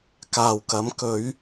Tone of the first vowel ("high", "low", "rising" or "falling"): low